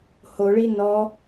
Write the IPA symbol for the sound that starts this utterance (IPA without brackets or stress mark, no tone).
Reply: h